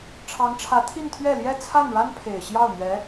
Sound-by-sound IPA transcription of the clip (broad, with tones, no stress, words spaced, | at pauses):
ʈ͡ʂʰɑ˧˥ŋʈ͡ʂʰä˧˥ t̪ʰi˥˧nt̪ʰɥɛ˥˩ ljɛ˥t͡sʰa˥˩nɻa˥n pʰe˨˩ɪ̯ɕjɑ˥˩ʊ̯ n̪ɥɛ˧˥